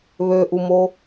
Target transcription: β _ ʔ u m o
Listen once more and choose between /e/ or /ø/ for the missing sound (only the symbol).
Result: ø